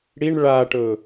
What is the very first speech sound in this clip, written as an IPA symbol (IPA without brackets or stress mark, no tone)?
ɽ